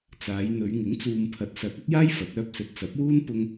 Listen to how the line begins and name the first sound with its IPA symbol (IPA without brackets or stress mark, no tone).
t͡s